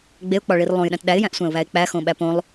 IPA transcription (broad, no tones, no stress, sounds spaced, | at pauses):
ɡ͡b e ʊ̯ k͡p ɒ ɭ i r lˠ õ j ɗ æ̃ t ɗ æ ɪ̯ j æ̃ ʔ sʷ æ̃ ʊ̯ β æ ɪ̯ k͡p æ x õ ɓ æ p õ lˠ